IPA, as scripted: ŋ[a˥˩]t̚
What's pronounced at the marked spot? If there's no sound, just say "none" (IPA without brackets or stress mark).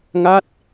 a˥˩